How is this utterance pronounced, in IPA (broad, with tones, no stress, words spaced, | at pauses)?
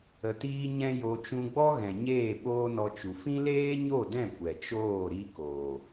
ə˨tiː˧ ɲɛ̃˦jo˧ t͡ʃũ˧ɡ͡bɔ˦ɣɛ̃˨ ɲeː˦˨ɓoː˦nɔ˧t͡ʃu˨ fĩ˦leː˦ɲo˦˨dɛ̃˦˨ kʷɛ˨t͡ʃoː˦˨ ɾi˧koː˨